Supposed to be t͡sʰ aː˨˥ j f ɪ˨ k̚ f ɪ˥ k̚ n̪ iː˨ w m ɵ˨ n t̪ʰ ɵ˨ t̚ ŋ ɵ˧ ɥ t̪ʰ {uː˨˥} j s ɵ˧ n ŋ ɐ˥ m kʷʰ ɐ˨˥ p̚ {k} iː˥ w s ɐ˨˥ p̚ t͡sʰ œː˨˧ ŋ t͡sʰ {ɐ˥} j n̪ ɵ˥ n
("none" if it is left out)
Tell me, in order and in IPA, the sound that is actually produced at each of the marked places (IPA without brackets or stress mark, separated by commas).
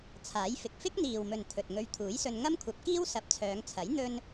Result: uː˨˥, k, ɐ˨˥